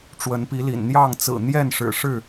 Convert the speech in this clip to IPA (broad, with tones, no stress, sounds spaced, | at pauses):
ʈ͡ʂ w ə˨˦ n p i˨˦ l ḭ˨˩ n n̪ j ɑ˥˨ ŋ t͡s ɹ̩˨˩ n̪ j ɛ˥˨ n ʂ ɻ̩˨˩ ʂ ɻ̩˥˨